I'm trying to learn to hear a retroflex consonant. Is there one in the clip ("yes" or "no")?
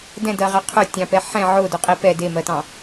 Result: no